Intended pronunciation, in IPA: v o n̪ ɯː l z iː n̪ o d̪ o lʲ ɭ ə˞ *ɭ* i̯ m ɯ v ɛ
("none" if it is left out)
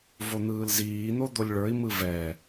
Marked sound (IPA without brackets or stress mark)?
none